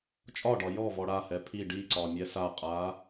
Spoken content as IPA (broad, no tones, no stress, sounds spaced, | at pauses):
t͡ʃʼ ɒ ɖ ɒ j ɔ v ɔ ɽ a h ɛ pʰ i ɖ i ǀ ɒ mʲ ɛ s a qʼ a